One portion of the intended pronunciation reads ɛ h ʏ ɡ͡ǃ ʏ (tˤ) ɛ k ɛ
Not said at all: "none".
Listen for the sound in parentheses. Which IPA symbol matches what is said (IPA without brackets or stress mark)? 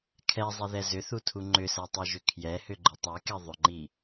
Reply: tˤ